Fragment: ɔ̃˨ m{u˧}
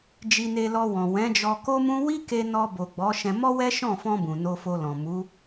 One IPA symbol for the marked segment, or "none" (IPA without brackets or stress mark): u˨˦